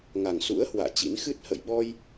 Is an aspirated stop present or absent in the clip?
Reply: absent